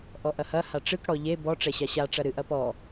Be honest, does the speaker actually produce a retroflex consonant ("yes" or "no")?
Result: yes